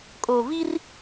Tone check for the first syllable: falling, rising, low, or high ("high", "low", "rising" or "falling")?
low